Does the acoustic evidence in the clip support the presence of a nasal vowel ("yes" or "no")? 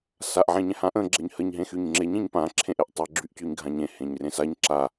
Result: yes